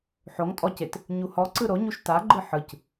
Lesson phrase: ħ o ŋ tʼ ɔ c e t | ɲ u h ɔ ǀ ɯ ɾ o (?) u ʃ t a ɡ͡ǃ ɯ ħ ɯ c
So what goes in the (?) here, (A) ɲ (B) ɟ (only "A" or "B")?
A